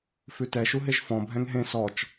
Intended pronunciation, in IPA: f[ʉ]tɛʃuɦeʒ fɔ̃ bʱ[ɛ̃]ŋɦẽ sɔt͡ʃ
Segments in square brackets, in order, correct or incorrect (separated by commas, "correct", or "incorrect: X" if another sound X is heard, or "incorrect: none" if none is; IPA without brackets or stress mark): correct, correct